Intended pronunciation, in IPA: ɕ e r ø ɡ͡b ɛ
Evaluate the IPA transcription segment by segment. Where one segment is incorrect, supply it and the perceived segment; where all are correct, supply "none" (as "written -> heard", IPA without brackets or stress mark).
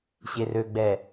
none